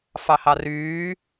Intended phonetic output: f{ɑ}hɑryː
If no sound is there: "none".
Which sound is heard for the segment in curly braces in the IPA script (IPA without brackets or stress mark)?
ɑ